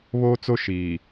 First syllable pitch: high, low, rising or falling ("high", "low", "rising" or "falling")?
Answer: high